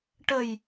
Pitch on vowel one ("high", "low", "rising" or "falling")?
low